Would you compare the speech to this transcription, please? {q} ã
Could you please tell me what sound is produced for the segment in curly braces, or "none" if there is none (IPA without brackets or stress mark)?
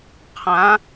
qʰ